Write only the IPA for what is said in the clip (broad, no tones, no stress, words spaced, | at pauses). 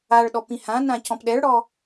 aɭ ɗɔpĩhãnã cɔ̃pɗɛɭɽɔ